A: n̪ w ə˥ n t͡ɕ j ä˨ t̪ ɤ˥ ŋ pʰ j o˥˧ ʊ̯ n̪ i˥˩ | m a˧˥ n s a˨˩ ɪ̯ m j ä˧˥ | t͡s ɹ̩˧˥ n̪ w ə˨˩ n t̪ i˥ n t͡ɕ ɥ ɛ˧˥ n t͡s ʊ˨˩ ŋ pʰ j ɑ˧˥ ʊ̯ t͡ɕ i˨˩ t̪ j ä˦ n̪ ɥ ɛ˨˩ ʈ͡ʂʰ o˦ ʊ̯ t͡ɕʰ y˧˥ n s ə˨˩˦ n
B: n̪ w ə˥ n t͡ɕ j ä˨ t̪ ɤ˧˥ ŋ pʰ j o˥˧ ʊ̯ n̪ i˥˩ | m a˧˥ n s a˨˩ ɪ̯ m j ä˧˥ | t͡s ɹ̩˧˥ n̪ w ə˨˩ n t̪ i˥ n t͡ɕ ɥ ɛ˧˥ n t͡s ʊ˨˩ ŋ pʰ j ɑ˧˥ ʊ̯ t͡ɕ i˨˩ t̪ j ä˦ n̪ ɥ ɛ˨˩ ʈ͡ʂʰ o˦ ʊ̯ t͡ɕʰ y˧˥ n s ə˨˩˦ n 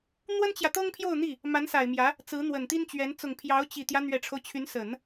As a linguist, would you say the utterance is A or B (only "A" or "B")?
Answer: A